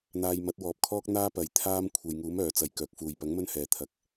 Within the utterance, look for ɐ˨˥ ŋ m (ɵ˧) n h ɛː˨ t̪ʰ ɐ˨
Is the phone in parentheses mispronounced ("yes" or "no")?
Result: yes